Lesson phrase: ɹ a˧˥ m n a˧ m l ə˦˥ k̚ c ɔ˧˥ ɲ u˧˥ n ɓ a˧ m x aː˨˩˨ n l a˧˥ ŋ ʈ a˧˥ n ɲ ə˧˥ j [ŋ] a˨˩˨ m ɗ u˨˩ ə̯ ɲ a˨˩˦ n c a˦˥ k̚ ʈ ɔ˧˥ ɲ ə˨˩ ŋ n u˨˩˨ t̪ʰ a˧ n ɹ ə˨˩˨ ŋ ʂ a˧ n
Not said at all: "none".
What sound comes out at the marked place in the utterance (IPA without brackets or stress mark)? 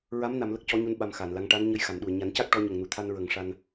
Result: x